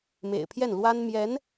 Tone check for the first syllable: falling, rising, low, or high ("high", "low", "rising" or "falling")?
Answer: low